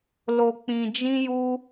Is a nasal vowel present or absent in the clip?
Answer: present